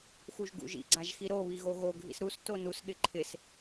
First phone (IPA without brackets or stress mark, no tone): x